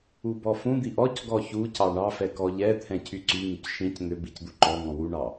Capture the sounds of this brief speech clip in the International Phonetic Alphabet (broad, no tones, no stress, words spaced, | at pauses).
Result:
ubɔfũd̪i ʔɔc ɡɔçucɑ ɳɑfɛ kɔʎɛt̪ʰɛ̃ cʰyǀyŋyc ʃĩc n̪ʏbic d̪uǃɔŋɔ̃ wuɳɑ